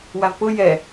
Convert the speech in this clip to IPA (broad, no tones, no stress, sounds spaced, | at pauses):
w a v p ʊ j ɛ